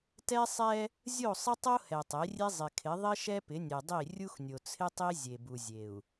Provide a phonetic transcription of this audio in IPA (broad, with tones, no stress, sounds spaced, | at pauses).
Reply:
t ɛ˦ sˤ ɛ˦ | zʲ o˦˨ sˤ ɪ˦ tˤ o˦ h ɛ˨ tˤ e˨˦ rʲ e˦ zˤ ɪ˨ kʰ ɪ˨˦ ðˤ ɪ˦ ʃ ɛ˦ p ɪ˨˦ nʲ e˨ dˤ i˦˨ rʲ u˦ x nʲ o˨ t͡sʰ ɪ˦ tˤ i˦ zʲ e˨ b u˨ zʲ e˨ u̯